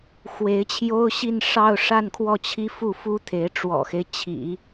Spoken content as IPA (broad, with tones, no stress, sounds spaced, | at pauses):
x w e˧˥ ɪ̯ t͡ɕʰ j o˥ ʊ̯ ɕ i˥˧ n ʂ ɑ˥˧ ʊ̯ ʂ a˥˧ n kʰ w ɔ˥˩ t͡ɕʰ i˥ f u˥˩ f u˥ t̪ʰ e˧˥ ɪ̯ ʈ͡ʂ w ɔ̰˨˩ x e˦ ɪ̯ t͡ɕʰ ḭ˨˩˦